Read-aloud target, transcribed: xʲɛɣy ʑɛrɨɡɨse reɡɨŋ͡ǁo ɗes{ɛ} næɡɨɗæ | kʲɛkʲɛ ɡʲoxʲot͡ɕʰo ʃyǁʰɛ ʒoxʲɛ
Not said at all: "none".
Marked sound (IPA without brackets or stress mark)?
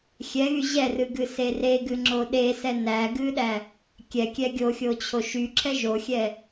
ɛ